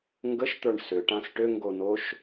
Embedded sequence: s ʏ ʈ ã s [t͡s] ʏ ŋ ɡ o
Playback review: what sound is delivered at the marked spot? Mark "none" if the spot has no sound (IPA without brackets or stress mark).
ʈ